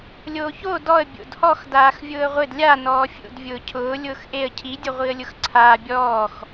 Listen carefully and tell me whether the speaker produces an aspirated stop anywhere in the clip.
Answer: yes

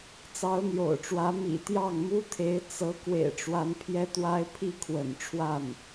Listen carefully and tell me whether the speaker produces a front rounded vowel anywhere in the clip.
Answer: no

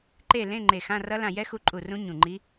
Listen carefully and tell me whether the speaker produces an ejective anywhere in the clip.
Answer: yes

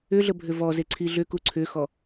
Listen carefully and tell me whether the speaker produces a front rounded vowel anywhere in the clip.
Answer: yes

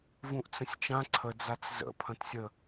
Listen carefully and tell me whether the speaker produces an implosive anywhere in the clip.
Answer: no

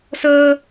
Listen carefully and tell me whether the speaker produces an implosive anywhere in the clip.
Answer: no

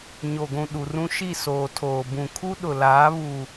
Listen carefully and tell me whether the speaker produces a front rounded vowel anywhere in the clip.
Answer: no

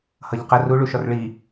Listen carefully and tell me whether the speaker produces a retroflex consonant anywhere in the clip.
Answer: yes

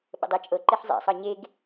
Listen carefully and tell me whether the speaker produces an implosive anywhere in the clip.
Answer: yes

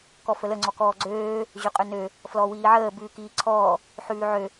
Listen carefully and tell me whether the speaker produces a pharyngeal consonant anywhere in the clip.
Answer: yes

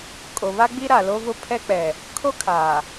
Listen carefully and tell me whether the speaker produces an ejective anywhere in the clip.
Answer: yes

